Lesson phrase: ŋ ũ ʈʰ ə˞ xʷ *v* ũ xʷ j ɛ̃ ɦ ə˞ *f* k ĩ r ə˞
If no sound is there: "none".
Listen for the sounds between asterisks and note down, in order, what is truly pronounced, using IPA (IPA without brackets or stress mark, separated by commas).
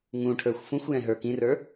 f, none